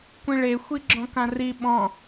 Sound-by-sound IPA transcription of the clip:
kʷ ĩ ɭ e xʷ i ɡ͡ǁ ɔ̃ k ã r i ɓ ɔ̃

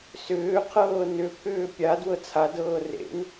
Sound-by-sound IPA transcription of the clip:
s ʏː qʰ ɤː n ʏ pʰ ʏː pʲ a d w ɤ t͡sʰ a d ɤː r ḛ n

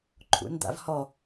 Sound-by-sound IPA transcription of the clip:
ǃʰ ṵ n d̪ a̰ v h ɔ

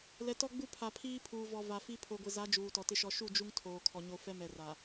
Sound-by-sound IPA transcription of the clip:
l ɛ˨ t ɔ˦ ɡ͡b u˦ pʰ a˨ pʰ iː˦ pʰ uː˨ v ɔ˨ v a˨ f i˦ pʰ o˨ ɡʷ ɪ˨ z a˨˦ d͡ʒ uː˨ t ɔ˨ t ɪ˦ ʃ ɔ˨ ʃ u˦˨ d͡ʒ u˦ ŋ tʰ oː˨ kʰ ɔ˨ ɲ o˨ f ɛ˦ m ɛ˨ r a˨

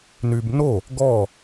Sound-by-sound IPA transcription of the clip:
n y b n o | ɡ ɔ

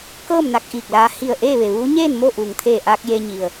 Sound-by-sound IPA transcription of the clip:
k ɤː˥˨ m n a˧ k̚ ʔ iː˧˩ k̚ l aː˧ h i˧˩ ə̯ ʔ eː˥˨ ʋ e˩ ʋ uː˧˥ ɲ eː˥˨ n m o˥˨ ʔ uː˩ ŋ t̪ʰ eː˧˩ ʔ aː˧ k̚ j e˧ ɲ i˩ ə̯

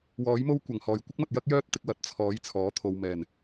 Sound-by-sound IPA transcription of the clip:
w ɔː˨˥ j m o˥ w kʷ ɐ˨˩ ŋ h ɔː˨˩ j kʷ ɪ˥ k̚ m ɐ˨ t̚ j ɐ˥ k̚ j œː˥ t̚ t̪ ɪ˧ k̚ w ɐ˨˥ t̚ t͡sʰ ɔː˨˥ j t͡sʰ ɔː˨˥ t̪ʰ o˨ w m ɛː˨˩ n

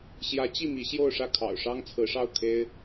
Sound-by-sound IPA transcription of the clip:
ɕ j ä˧˥ t͡ɕ i˥˩ m i˧˥ ɕ j o˥˧ ʊ̯ ʂ ä˥˩ kʰ ɑ̰˨˩ ʊ̯ ʂ ɑ˥ ŋ t͡sʰ ɹ̩˧˥ ʂ ɑ˥˩ ʊ̯ kʰ e˥ ɪ̯

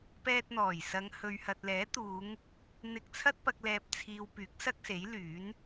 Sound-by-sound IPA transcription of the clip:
p ɛː˧ t̚ n̪ ɔː˨˩ j s ɐ˨˧ ŋ h ɵ˨ ɥ h ɐ˨ t̚ l ɛː˨˥ t̪ uː˨˧ ŋ | n̪ ɪ˧ k̚ t͡sʰ ɐ˥ t̚ p ɐ˧ k̚ l ɛː˨ p̚ t͡sʰ iː˨ w p yː˨˥ k̚ s ɐ˥ k̚ s e˨˥ j l yː˨˥ n

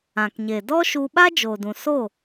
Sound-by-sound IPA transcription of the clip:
ã˨ k ɲ e˨ d ɔ˦ ʃ u˧ ɓ a˦ d͡ʒ oː˨ d ũ˨ s o˦˨

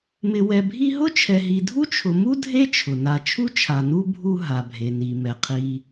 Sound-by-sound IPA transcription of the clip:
m ɪ˨ w ɛ˨ bʱ i˦ ɦ ʊ˥ t͡ʃʰ ɛ˨ ɦ i˨ dʱ u˥ t͡ʃʰ ʊ˨ m u˥ dʱ e˥ t͡ʃʰ ʊ˩ n a˨ t͡ʃʰ u˥ t͡ʃʰ a˨ n u˥ bʱ u˦ ɦ a˩ bʱ e˩ n i˩ m ɛ˩ qʰ i˨

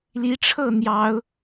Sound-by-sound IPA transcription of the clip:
l i˨˦ ʈ͡ʂʰ ɤ˥˨ n̪ j ɑ˨˦ ʊ̯

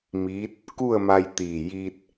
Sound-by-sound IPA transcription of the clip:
m iː˧˥ t̚ | k u˥˨ ə̯ m a˧ j t̪ iː˧˩ j iː˧ t̚

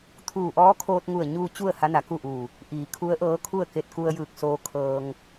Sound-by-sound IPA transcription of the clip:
t̪ʰ uː˧˩ ʔ ɔː˧˥ kʰ oː˧ t̚ ŋ u˧˩ ə̯ ɲ u˧ t͡ɕ u˥˨ ə̯ h a˧˥ n a˩ k u˥˨ ʔ uː˧˩ | ʔ iː˩˧ kʰ u˧˥ ə̯ ʔ ɤː˧˥ kʰ u˥˨ ə̯ k e˧ t̚ k u˧ ə̯ j ɯː˧˩ k̚ s oː˧ kʰ ɤː˧ ŋ

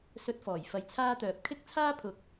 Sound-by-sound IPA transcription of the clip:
s ɵ˧ t̚ f ɔː˨˩ j f ɐ˨˧ j t͡sʰ aː˥ t̪ œː˨ p̚ kʰ ɪ˥ k̚ t͡sʰ aː˥ pʰ ʊ˨˥ k̚

